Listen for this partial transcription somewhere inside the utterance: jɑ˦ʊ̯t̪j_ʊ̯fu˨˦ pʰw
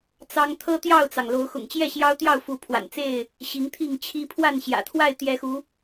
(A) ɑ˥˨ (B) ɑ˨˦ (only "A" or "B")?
A